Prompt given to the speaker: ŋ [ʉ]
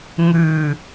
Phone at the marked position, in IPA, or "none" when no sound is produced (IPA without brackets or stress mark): ʉ